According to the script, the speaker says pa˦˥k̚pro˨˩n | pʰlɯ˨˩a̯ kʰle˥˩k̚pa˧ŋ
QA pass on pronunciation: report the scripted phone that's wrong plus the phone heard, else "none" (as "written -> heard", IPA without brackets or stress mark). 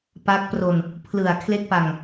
o˨˩ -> o˧